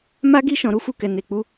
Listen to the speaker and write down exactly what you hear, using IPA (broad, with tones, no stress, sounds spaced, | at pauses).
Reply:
m a˦ ɡ i˦ ʃ ɔ̃˧ ɾ u˦ f u˦˨ k ɛ˨ n e˨ k͡p u˨˦